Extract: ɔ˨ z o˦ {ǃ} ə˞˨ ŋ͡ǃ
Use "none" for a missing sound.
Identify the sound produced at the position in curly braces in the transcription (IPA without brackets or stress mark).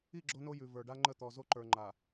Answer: ǃ